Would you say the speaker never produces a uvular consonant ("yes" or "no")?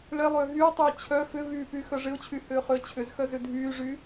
no